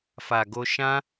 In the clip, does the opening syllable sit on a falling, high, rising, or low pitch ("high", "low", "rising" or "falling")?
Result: low